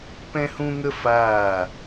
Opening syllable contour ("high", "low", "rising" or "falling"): high